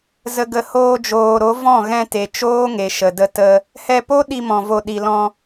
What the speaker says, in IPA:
zə˨ɡə˨ hoː˧d͡ʒoː˨ɾo˨˦ vɔ̃˦˨ɣɛ̃˧te˨ t͡ʃoː˦ŋe˨ʃə˨də˧ tə˧ | hɛ˧po˦ ɗi˧mɔ̃˨vo˨ ɗi˨lɔ̃˧

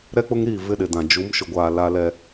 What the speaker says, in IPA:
ɾɛ˦k͡pʊ˦ŋɾiː˦˨ vɪ˦ɗɪ˨dã˨ d͡ʒu˨˦mʃʊ˨ɡʷaː˨ la˦lɛ˦

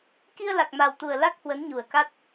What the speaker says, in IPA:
ki˧ə̯la˨˩k̚ ma˨˩wt̪u˨˩ə̯ la˦˥k̚hwə˨˦nɲu˨˩ə̯ka˦˥t̚

